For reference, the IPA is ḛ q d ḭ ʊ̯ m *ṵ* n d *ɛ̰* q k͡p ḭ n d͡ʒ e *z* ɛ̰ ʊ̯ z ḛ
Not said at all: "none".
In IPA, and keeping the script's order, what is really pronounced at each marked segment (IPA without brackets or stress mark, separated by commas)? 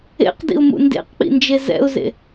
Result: ṵ, ḛ, z